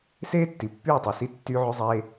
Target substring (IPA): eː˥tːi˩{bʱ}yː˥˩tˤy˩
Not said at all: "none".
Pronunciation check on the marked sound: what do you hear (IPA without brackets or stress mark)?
pː